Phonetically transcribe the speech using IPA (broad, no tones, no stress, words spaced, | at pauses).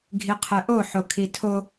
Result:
ɡʱiqʰɛʔo ħokʰitʰo